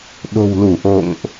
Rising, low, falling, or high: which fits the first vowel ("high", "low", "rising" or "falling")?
low